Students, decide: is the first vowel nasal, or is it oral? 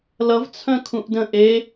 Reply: oral